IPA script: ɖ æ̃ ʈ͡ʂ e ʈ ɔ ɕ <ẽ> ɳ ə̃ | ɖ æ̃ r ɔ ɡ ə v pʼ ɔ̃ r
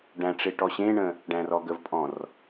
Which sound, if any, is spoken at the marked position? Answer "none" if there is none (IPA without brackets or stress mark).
ẽ